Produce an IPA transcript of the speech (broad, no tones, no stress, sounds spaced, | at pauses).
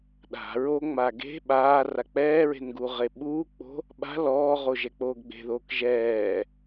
ɗ a̤ ɹ o ŋ͡m a ɡ e̤ ɓ aː r a k͡p ɛː ɹ e̤ n ɡ u ʁ e ɓ uː k͡p o̤ | ɓ a̤ l ɔː ʁ o ʒ ɛ k͡p oː ɡ ɡ͡b e̤ ð oː k ʒ ɛː